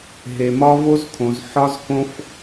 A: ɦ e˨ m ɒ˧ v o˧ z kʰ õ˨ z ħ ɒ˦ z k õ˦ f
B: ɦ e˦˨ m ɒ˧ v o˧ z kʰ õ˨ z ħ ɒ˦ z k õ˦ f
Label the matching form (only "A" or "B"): A